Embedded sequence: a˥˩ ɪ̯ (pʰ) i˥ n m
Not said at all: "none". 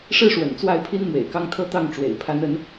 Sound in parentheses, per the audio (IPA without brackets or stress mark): pʰ